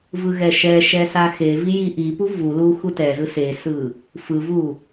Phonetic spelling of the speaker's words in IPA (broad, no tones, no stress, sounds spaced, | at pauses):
v ɯ ɣ ɛ ʃ ɛ ʃ ɛ s a x e v i j i ʔ i p u v u l u x u t ɛ z ɯ s e s ɯ | f ɯ v u